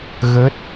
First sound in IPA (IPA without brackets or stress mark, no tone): ɣ